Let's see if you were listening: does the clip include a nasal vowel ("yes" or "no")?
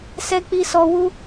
no